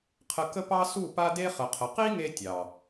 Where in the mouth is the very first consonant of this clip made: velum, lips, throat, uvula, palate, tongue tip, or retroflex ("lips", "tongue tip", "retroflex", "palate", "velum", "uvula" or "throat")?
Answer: uvula